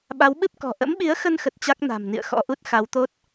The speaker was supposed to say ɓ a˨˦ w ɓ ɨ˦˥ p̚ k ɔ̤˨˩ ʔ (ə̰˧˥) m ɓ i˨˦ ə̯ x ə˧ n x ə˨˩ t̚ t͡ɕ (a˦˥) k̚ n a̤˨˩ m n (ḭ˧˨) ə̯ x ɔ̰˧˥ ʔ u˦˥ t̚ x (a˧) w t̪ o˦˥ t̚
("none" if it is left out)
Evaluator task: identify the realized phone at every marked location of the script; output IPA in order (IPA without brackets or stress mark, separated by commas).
ə̰˧˥, a˦˥, ḭ˧˨, a˨˦